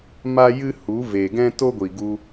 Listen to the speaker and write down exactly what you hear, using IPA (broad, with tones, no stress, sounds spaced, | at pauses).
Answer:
m a˦ j ɨ˦ h u˨˦ v e˨ ɡ ɛ̃˦ t o˦ ɡʷ i˨ ɡ u˧